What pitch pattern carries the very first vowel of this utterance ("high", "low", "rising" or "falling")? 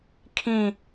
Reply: falling